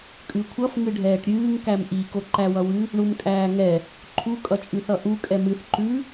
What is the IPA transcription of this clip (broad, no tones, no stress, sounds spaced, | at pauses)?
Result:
kʼ ʉ kʷʰ ʌ f ŋ ɨ ɖʱ ɛː ʈ ɾʲ ɨː ŋ k æ m ʔ i k o ǃ æ w ʌ w ʉ | ɳ u m kʼ æː ŋ ɛ | ǃʰ u kʼ ʌ t͡ʃʼ ʉ θ ʌ ʔ u kʼ ɛ m ɨ θ ǃ ʉ